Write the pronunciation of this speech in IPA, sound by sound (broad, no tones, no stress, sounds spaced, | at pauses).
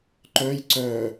ǃ œ j ǀ œ